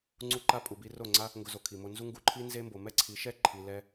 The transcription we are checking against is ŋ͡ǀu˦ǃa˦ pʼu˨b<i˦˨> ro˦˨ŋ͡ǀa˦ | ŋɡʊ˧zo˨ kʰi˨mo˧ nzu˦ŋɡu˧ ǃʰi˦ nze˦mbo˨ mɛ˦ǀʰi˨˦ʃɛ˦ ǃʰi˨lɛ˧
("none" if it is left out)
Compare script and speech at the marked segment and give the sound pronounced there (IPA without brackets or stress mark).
i˧